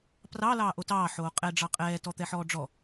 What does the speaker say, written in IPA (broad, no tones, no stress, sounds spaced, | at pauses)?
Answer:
p r ɑ l ɑː ʔ o t ɑː ħ oː qʼ ɛ ɖ͡ʐ ɑ qʼ ɛː t ɔ t̪ ɛ ħ ɔː ɖ͡ʐ ɔ